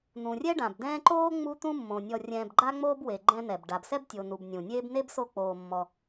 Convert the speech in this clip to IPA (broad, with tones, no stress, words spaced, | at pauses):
n̪ũ˩rʲɛ˥ɖã˩b dɛ̃ː˦ǃoː˥ ŋ͡mu˦t̪ũ˦mːõ˩ nʲɔ˨rʲɛ̃ː˨bɡ͡ǃa˦ŋ͡moː˦b we˨ɡ͡ǃɛ̃˦n̪ɛ˩b ɖa˩bsɛ˥btʲo˩ nu˨bnʲũ˩nʲeː˥b ne˥bso˦k͡poː˨ mːɔ˨